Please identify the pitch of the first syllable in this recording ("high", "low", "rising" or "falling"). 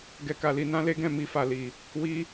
high